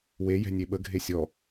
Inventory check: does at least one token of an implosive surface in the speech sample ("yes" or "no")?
yes